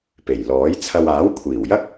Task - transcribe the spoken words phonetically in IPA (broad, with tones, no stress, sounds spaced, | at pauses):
p e˨˩ j l ɔː˨˥ j t͡sʰ ɐ˧ w aː˨˥ w kʷʰ iː˨˩ w j ɐ˥ k̚